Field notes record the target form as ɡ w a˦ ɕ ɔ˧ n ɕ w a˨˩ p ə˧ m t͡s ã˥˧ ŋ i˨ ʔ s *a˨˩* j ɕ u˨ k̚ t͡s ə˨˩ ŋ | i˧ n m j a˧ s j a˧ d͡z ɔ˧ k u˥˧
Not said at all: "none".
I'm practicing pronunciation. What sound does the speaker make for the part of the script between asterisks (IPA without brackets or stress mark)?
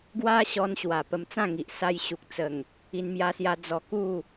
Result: a˧